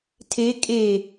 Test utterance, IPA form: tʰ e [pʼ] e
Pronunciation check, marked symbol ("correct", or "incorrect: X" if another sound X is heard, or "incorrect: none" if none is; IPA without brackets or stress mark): incorrect: kʼ